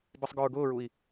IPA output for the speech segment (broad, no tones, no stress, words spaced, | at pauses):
bisˤɡɔɹɡʊːɹui̯